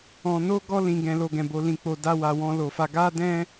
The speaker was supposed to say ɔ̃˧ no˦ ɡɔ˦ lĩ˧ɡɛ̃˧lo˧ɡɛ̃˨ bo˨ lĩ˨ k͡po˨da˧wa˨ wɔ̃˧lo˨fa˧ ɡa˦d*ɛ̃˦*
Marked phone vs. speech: correct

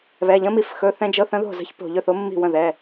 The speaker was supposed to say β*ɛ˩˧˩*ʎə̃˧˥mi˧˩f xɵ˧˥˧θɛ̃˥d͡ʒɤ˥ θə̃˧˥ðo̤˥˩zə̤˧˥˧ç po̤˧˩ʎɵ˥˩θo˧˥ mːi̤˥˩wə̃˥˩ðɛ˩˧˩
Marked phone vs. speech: correct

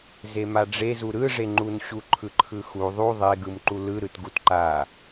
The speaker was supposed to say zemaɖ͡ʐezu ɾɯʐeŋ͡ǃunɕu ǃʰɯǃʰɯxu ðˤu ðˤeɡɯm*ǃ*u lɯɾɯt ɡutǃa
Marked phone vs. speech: correct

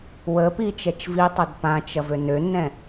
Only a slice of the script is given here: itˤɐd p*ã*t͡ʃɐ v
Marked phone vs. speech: correct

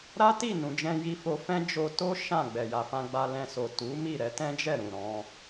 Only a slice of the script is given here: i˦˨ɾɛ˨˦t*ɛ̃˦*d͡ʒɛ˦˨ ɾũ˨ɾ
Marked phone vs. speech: correct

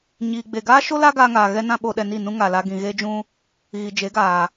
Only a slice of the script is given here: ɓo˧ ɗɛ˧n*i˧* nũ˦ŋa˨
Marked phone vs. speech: incorrect: i˦˨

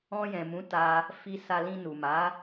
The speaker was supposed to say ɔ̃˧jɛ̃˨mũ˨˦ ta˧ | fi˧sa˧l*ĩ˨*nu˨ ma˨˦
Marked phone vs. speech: incorrect: ĩ˧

